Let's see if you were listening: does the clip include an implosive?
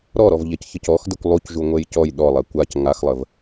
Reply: yes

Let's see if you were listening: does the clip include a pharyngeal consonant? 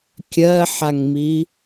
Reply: yes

